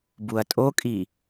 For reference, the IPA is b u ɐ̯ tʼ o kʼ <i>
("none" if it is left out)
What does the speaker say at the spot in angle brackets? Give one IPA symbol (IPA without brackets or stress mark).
i